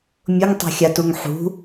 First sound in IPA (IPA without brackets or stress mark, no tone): mʲ